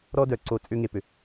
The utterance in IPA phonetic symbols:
ɾɔ˥dœ˩ǀo˧ t͡sʼʏ˥ŋe˩pʏ˩

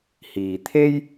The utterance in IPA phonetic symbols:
hiː˨t̪ʰe˥j

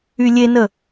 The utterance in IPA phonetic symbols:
ylʲenə

